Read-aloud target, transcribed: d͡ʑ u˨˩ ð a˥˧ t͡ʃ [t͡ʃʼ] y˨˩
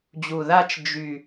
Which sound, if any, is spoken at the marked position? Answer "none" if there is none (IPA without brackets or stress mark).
d͡ʒ